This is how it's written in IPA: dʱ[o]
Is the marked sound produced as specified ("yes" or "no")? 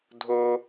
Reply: yes